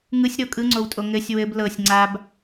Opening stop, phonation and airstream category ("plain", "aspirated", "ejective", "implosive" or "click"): ejective